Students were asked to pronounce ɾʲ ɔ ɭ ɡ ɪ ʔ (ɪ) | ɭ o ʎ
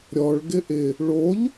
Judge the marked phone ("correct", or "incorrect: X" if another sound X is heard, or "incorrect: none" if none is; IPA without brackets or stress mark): correct